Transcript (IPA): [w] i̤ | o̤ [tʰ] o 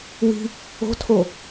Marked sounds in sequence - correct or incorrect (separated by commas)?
correct, correct